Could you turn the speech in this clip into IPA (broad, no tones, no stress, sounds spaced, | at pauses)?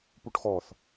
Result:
p u ʈ x ɔ θ